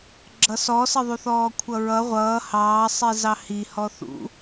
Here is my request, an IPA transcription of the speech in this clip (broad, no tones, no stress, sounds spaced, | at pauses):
ɡ͡ǁ ʌ s ɔ s ə ðˤ u θ ɔː kʷʰ ʌ ɹ ʌ ʁʷ ʌː h ɑː sˤ i z ɑ h i h ɔ θ ṵ